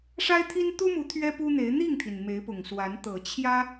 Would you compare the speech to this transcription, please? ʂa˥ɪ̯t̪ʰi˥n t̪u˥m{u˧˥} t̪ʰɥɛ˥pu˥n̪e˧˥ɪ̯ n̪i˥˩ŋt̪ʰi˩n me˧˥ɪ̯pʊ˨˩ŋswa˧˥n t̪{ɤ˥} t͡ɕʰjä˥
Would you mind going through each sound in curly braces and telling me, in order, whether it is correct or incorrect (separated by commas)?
correct, incorrect